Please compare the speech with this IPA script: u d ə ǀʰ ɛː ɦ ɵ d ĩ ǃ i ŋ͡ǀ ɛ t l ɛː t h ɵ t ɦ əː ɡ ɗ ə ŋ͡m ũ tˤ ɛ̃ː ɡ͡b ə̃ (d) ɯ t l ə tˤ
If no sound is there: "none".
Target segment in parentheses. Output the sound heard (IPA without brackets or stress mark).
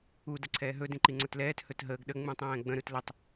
ɾ